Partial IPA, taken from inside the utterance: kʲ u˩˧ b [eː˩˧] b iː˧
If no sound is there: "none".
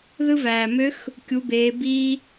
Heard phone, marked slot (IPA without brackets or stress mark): eː˩˧